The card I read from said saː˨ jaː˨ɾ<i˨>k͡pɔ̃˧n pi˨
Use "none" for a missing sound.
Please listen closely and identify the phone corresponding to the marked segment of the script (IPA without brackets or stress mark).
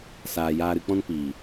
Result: ɨ˨